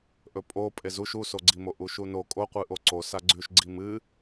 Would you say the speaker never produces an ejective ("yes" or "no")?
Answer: no